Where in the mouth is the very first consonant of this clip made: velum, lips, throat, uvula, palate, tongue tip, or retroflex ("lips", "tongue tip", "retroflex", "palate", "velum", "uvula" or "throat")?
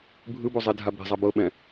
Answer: lips